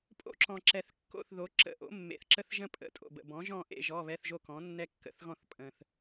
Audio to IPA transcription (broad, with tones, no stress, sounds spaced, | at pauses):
pʼ o̰˥˨ ǁ ɔ̃˨˩ ǁ ɛ˨˩ θ kː o̰˥˨ θ ð o˩˥ ǁ ə̰˧˥˧ ʔ o̰˩˥ mː ḛ˨˩ θ ǁ ə˥˨ θ ʒ ə̃˥ pʼ ə̰˧˥˧ tʼ o̰˨˩ b ə̰˨˩ b ɔ̃˩˥ ʒ ɔ̃˥˨ ʔ ḛ˥˨ ʒ ɔ˧˥˧ β ɛ˧˥˧ θ ʒ o˥˨ k ɔ̃˩˥ nː ɛ˥ kː ə̰˥ θ ɣ ɔ̃˥˨ θ pʼ ə̃˨˩ θ